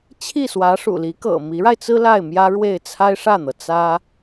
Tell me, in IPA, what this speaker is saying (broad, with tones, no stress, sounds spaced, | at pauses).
t͡ɕʰ i˥˩ s w ä˧˥ ʂ ṵ˨˩ l i˧˥ k ɤ̰˨˩ m i˧˥ ɻ a˧ ɪ̯ t͡s ɹ̩˥ l a˥˩ ɪ̯ m j ä˥ ɻ w e˥˩ ɪ̯ t͡sʰ a˥ ɪ̯ ʂ ä˥˩ n̪ ɤ˩ t͡s ä˥